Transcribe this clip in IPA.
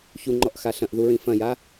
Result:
ç u ŋ͡ǃ ɔ ʔ x a ɬ ɐ̃ ʔ ð u ɹ ĩ f ɐ̃ j a

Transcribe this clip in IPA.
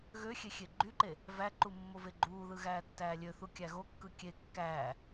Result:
ɣ ø xʲ e xʲ e ɡ͡ǃ y ǃ e | v æ ǃ u mː o v e ɡ͡ǃ uː ð ɯ ɣ æː tː æː lʲ ø θ u kʲ æ ɣ o kː ɯ kʲ e kː æː

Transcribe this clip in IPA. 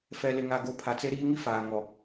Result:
f ɛ˨ l ɪ˨ ŋ a˨ ɡ o˨ pʰ a˨ t͡s e˦ ɾ iː˦ ŋ i˦ f aː˨ ŋ ɔ˨

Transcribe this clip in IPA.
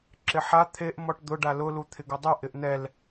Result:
ǁ ɪ ħ a t̪ʰ e ʔ m ɔ ʈ d̪ ʊ ɖ a l ʊ l u t̪ʰ ɪ ɡ ʊ dˤ u ʔ ɪ ʔ n̪ ɛ l

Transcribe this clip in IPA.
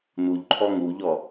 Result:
n u ʎ ǃʰ ɔ ŋ u ʎ ɔ

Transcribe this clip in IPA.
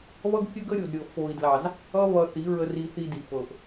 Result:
β ʌ˦ ɡ kʲ ɘ˦ ɡ ə˦ ɾʲ o˨ d ɾʲ ɤ˨ f o˨ i̯ d l ɑ˨ z | ʌ˦ β ʌ˧ θ i˨˦ ɹ ə˧ r i˧ θ i˧ d i˨ f ɤ˨ ʔ

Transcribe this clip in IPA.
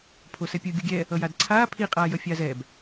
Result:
pʰ o s ɛ pʲ ɯ ɡʲ u ɡʲ ɛ | ʌ j a d ǀʰ aː pʰ i qʼ aː j ʌ fʲ aː z ɛ b

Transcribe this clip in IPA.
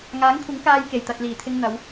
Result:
ŋ aː˨˥ ŋ kʷʰ ɪ˨˥ ŋ k aː˧ j k e˨˩ j t̪ ɐ˨ t̚ l iː˨˩ t̪ʰ ɪ˧ ŋ n̪ ɐ˨˧ w

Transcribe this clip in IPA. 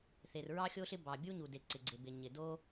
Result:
θ e˩ r ɹ ɑ˥ xʲ o˥ ɬ ɪ˥ b ɑ˩ bʲ u˥ ɲ u˩ d e˩ ǀ ɪ˩ ɡ͡ǀ e˩ b ɪ˩ ɲ ɪ˩ d o˥

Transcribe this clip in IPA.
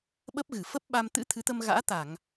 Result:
ɓ ə˦˥ p̚ ɣ ɨ˧˩ f ə˦˥ p̚ ɓ a˧ m t̪ ɨ̰˧˥ t̪ʰ ɨ˨˦ t̪ ə˧ m ɣ a̰ː˧˥ t̪ a˧˩˨ ŋ

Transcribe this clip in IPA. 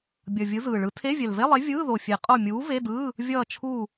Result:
bʲ ʌ˨˩ vʲ ɯ˨˥ z ɯː˨˩ ɭ ɯ˨˥ tʰ e˧˥˧ vʲ ɛ˨˩ l v e˧˥˧ lˠ e˨˥ vʲ ɯː˧˥˧ ð o˨˩ fʲ e˨˩˦ qʼ o˦˨ mʲ uː˨˥ v e˧˥˧ d ɯː˧˥˧ | vʲ ʌː˦˨ t͡ʃʰ uː˦˨

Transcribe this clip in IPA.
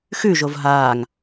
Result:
x ʉ ʒ o v ɦ aː ŋ

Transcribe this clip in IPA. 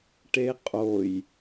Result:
ʈ e qʼ o j

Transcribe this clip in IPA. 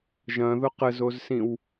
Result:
ʒ ɐ̃ ð ʊ q ə z o z s ĩ w

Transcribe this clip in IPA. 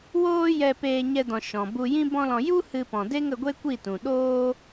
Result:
w oː˦ j ɛ˦ p eː˦ ɲ ɛ˦ d ɔ̃˧ ʃ ɔ̃˨ b u˧ j ĩ˦ b ɔ̃˦ l ɔ̃˧ j u˦ h ɨ˦ p ɔ̃˧ d e˦ ŋ ə˧ ɡʷ e˦ kʷ i˦˨ t ũ˨ ɗ oː˦

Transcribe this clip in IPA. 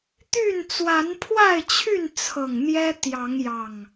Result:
t̪ y˥˨ n t͡s w a˨˦ n pʰ w a˥˨ ɪ̯ t͡ɕʰ y˥˨ n t͡sʰ ɤ˨˩ ŋ n̪ j ɛ˦ t̪ j ɑ˨˦ ŋ j ɑ˨˩ ŋ

